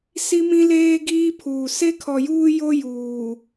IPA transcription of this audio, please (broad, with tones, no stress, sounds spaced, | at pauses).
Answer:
s i˦ m ĩ˦ l eː˦ ɡ iː˦ pʰ uː˨ s e˦ kʰ ɔ˨ j uː˦ j o˦ j uː˨